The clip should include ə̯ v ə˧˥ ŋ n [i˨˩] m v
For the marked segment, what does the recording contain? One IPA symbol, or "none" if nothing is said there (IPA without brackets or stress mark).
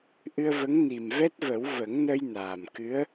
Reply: i˨˩